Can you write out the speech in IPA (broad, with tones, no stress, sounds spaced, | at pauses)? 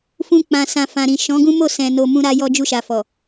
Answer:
f ũ˧ k͡p ã˨ s ã˨ f ã˨ ɾ ĩ˨ ʃ ɔ̃˨˦ ɡ ũ˦ m o˦˨ s ɛ̃˨ n o˧ m ũ˦ ɾ a˦ j ɔ˧ d͡ʒ u˧ ʃ a˨ f ɔ˨